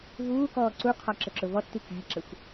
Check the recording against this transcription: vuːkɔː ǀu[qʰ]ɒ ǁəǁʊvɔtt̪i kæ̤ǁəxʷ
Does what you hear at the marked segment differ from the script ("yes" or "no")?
no